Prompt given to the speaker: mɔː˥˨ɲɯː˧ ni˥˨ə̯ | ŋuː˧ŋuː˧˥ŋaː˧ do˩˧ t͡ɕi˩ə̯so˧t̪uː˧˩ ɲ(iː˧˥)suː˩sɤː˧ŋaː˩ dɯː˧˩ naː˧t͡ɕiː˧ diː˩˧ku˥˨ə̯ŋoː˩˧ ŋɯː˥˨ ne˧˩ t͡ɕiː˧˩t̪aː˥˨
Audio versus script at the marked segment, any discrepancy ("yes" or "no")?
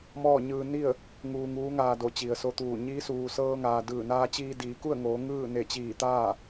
no